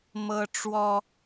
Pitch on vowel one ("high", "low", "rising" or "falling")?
high